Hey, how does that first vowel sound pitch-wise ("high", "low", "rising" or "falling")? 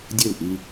falling